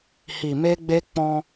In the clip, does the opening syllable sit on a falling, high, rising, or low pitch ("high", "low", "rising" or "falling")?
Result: low